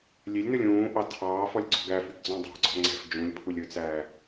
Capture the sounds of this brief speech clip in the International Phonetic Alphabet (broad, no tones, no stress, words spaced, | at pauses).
lʲelʲnɵlʲ ũːʔɑ tʰɑːf ɔlʲɡ͡ǀɔ̤ɡæfyɡ d͡zɔ̃dˤæ̤ɡ͡ǀɔ̤ ŋ͡ǀɛ̤f d͡ʒũlʲ pʰulʲɵt͡sæː